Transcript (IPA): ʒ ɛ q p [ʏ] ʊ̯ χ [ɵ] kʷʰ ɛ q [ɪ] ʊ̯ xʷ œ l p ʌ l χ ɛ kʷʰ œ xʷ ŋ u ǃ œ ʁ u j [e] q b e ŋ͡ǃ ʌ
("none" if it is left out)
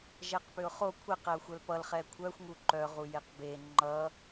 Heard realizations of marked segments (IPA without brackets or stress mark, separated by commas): ʏ, o, ɛ, e